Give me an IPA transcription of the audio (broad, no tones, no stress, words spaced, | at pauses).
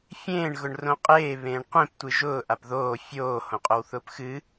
fʲẽːɳ ɣʊɳrõqʼeː βẽːɳqʷẽp tʷɨʒʊː ʔapðoː fʲoː hõqʼowθʊːpxɨ